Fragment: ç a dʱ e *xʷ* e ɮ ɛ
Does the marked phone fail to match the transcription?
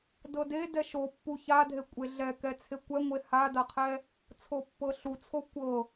yes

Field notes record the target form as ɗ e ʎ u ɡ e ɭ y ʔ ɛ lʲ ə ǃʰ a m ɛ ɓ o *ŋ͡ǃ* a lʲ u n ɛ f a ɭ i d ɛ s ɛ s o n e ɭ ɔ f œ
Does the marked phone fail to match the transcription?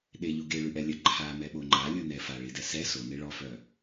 no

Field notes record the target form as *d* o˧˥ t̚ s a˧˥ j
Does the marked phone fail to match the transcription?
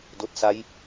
no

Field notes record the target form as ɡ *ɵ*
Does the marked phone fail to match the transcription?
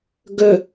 no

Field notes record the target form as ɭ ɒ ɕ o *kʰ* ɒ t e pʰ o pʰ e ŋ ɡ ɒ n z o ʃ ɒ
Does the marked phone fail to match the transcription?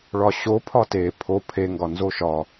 yes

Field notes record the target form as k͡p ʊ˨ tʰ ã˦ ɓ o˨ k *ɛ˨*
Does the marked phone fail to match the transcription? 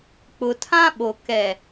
no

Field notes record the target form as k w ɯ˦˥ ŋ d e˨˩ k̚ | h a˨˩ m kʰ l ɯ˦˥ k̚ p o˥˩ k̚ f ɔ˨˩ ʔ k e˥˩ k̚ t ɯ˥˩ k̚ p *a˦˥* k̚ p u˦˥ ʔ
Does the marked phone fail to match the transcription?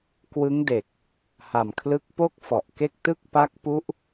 no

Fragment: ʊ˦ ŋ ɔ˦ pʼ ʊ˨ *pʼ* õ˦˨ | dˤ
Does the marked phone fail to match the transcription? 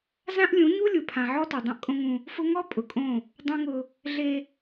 yes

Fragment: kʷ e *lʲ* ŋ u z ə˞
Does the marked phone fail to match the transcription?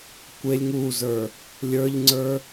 no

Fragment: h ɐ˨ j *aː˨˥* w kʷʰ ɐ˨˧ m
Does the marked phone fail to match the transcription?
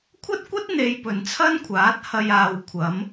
yes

